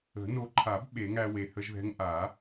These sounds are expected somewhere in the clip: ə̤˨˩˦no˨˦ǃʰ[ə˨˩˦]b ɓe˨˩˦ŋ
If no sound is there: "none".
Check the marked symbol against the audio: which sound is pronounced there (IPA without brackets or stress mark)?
a˨˩˦